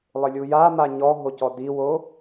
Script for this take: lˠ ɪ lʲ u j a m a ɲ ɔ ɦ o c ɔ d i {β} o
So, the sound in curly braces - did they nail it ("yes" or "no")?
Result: no